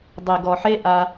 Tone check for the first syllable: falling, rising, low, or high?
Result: low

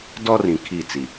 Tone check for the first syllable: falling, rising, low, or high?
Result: high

